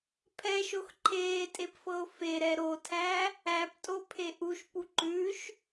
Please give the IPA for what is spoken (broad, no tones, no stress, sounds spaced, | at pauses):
pʰ ɛ ʃ o x ǃʰ eː tʼ e p f ɤ o̯ f e ɾ ɛ ɾ o tʰ æ | æ p tʼ o pʰ e ʔ u ʃ p u ǃ ʉ ʃ